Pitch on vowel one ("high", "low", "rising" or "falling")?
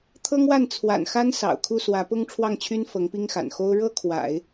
high